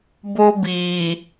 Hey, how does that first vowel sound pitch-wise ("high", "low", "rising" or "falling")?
high